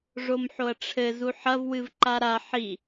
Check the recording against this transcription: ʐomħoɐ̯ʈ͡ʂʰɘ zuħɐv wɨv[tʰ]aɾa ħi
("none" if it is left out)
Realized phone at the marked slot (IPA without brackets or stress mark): ǃ